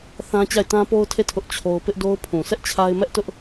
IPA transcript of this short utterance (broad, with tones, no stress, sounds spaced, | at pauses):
θ ã˦ t͡ɕ a˦˨ ɪ̯ t ã˦ p o˦ ʊ̯ tʰ e˦˨ tʰ ʊ˦ ʔ t͡ɕʰ o˦ ʊ̯ p ɪ˦ ʔ d o˦ ʊ̯ pʰ ũ˨ s ɛ˦ ʔ t͡ɕʰ a˦ ɪ̯ m ɛ˦ ʔ t ʊ˦ ʔ